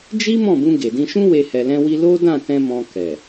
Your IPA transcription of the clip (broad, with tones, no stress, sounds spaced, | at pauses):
d͡ʒ i˦ m ɔ̃˦˨ b ũ˧ ɡ e˨ d ĩ˧ ʃ ũ˦ w e˧ h ɛ˨ l ɛ̃˧ w i˧ l o˦ d ã˦˨ t ɛ̃˧ m ɔ̃˧ k ɛ˨